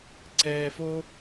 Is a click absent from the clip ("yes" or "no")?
no